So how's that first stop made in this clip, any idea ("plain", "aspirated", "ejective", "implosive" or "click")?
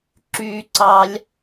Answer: click